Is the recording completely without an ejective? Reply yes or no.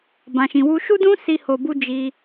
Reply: yes